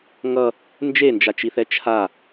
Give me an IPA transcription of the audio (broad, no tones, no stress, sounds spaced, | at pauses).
ŋ ʌ | n d͡ʒ e n d͡ʒ a t͡ʃ i θ ɛ t͡ʃʰ a